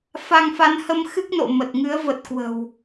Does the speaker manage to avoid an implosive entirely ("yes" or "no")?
yes